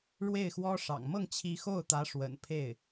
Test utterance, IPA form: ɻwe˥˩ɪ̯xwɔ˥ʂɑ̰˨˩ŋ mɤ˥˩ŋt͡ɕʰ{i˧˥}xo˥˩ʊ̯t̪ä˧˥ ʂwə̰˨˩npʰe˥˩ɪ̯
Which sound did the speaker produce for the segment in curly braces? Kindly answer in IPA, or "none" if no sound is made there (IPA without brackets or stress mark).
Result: i˧˥